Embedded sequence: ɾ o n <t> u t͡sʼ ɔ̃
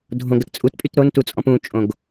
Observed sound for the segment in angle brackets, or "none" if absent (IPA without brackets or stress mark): t